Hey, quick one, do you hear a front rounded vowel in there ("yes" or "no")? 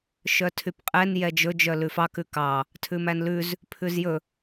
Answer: yes